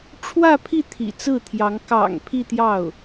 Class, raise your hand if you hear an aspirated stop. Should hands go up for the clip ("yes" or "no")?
yes